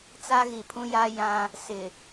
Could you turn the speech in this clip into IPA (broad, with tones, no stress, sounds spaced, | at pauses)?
t͡s a˦ ɣ i˨ pʰ ũ˦ j aː˦ j ã˦ | s ɪ˨